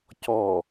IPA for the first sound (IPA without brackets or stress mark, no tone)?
c